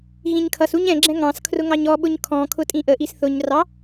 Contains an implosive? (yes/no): yes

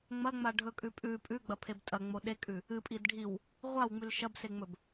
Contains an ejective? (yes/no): yes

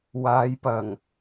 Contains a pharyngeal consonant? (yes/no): no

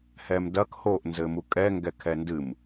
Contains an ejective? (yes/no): yes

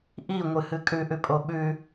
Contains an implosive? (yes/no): yes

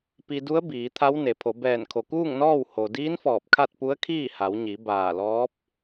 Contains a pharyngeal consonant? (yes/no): no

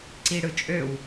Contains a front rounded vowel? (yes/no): yes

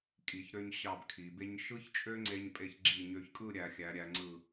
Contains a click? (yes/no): yes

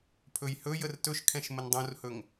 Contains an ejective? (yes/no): no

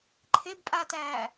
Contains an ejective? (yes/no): yes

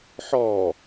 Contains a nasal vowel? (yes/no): no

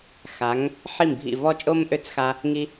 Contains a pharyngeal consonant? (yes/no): yes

